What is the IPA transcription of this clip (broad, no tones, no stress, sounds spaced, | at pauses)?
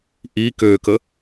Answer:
ʔ i k ø k ə